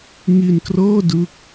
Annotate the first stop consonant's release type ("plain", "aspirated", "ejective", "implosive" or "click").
plain